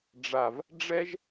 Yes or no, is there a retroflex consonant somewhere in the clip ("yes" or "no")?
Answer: yes